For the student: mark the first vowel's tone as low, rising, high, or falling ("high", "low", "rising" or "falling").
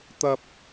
high